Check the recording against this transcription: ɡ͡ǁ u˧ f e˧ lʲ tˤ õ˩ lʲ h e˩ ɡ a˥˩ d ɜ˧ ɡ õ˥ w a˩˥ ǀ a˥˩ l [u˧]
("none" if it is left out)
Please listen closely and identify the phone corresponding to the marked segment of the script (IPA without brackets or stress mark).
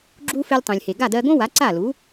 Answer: u˩˥